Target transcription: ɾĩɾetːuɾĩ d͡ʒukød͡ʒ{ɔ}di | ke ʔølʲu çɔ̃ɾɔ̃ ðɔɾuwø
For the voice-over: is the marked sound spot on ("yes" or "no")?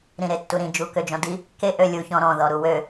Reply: no